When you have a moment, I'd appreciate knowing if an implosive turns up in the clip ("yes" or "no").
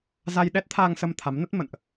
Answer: yes